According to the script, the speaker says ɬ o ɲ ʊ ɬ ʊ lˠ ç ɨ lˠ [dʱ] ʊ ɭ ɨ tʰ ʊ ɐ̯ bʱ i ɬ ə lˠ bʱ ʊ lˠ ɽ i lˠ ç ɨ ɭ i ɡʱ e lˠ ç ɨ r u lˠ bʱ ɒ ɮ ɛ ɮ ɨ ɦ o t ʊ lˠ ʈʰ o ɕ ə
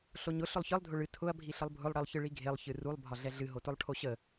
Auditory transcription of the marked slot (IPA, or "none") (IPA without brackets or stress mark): dʱ